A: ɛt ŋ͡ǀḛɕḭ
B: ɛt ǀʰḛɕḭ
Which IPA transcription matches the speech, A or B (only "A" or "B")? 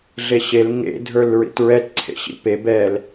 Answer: B